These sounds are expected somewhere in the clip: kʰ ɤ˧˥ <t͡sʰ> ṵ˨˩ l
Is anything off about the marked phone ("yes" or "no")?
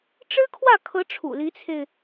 yes